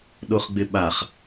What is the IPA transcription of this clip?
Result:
ɗ o χ ɡ͡b ɪ ɓ a χ

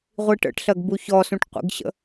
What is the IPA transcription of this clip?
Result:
ʁʷ i ʈ ə̰ ʈ ɬ ɜ ɡ b u ç ɔ s ũ ʈ qʷ ḭ ɡ ɕ ə̰

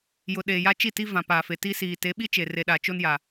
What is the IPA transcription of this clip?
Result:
j ʊ˨ ɗ eː˨ j a˦ t͡ʃ i˦˨ t i˦ v ã˨ p aː˨ f e˨ t i˦ s iː˨ t e˨˦ ɓ i˦ t͡ʃ e˨ r e˨ ɗ a˨ t͡ʃ o˦ n j a˨

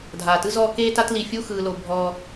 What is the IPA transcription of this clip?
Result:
dʱ aː˩ t ɯ˦ z ɔ˦ k eː˥ t a˥ t l i˨ fʲ u˥ x ɯː˨ l o˨ bʱ ɔ˦

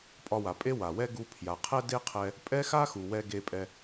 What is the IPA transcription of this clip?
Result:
pʼ ɒ˧ w a˨ pʼ e˦ w a˨ w ɛ˦ ɡ u˧ pʰ j a˨ qʰ ɛ˦ d e˦ qʰ ɛ˧ | pʼ ɛ˦ x a˦ x u˨ w ɛ˧ ɡ e˧ pʼ ɛ˧

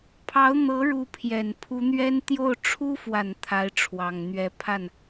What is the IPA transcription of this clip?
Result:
pʰ ɑ˧˥ ʊ̯ n̪ ɤ˧˥ ɻ u˧˥ pʰ j ɛ˨˩ n pʰ u˧˥ n̪ ɥ ɛ˥ n t̪ j o˥˩ ʊ̯ ʈ͡ʂʰ u˥ f w a˨˩ n t̪ʰ a˧˥ ɪ̯ ʈ͡ʂʰ w ɑ˨˩ ŋ n̪ ɥ ɛ˧˥ pʰ a˥˩ n

